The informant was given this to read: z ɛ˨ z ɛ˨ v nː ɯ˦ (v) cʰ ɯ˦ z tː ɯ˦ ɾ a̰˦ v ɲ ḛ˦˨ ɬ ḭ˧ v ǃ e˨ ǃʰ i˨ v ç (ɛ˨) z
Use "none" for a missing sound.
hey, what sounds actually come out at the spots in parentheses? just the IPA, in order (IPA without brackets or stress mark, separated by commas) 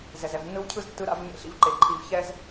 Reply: w, ɛ˧